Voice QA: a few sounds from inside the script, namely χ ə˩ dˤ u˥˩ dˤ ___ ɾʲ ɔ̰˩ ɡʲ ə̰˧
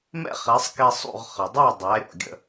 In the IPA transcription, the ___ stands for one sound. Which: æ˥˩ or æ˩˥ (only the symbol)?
æ˩˥